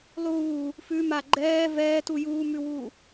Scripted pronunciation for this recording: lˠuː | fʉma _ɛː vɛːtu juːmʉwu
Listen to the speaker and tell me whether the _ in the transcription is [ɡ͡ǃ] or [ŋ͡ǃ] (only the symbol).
ɡ͡ǃ